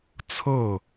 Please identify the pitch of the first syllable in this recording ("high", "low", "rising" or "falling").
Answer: falling